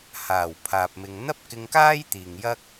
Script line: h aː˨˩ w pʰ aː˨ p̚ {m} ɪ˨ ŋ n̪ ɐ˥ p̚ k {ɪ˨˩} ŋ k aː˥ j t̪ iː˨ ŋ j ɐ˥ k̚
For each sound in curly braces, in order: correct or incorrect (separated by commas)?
correct, incorrect